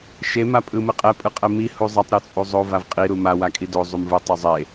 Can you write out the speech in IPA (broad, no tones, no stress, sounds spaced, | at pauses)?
ʃ e m a pʼ ɯ m ɯ qʼ ɛ pʼ ɯ qʼ ɛ m i h u zˤ ʌ tˤ ɾ o t͡sʼ u zˤ o v a v qʼ i ɾ u m a w a kʼ i d o zˤ u m v ɯ tˤ u zˤ e